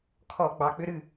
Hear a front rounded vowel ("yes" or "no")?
yes